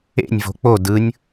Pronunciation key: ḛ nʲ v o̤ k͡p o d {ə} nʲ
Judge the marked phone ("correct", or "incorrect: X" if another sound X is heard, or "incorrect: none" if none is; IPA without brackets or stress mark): incorrect: ɯ